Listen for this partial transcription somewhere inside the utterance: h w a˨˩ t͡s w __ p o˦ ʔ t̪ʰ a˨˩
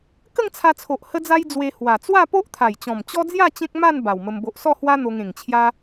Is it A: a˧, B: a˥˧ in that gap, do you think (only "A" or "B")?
B